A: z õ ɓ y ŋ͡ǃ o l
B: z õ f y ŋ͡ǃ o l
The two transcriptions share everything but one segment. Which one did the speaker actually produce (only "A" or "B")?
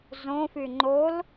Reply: B